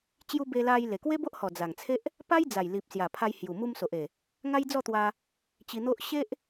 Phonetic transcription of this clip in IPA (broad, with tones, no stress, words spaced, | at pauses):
t͡ɕju˦ be˧la˧j le˨˩kwe˦bo˦ʔhɔ˨˩ d͡za˨˩ŋt͡sʰe˦ʔ | pa˦jd͡za˨˩j li˨p̚ sja˨˩pʰa˧j hju˨˩mu˧mso˨ʔe˨˩ | ŋa˦jd͡zɔ˥˧t̪wa˧ | t͡ɕi˧n̪o˦ʔ ɕe˦ʔ